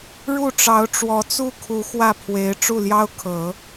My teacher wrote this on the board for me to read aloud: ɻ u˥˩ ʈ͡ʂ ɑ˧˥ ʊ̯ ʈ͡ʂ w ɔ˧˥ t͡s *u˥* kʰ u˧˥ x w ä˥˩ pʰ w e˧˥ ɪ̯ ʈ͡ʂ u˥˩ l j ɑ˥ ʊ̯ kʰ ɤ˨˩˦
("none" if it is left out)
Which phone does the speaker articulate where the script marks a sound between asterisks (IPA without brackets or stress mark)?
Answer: u˥˩